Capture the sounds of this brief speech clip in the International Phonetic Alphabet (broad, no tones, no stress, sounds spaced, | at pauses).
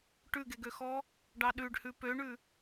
ʈ ʉ ɡ e ɡ ø x ɔ | ɖ ɑ ɗ ʉ ɖ h ʉ p ø ɳ ʉ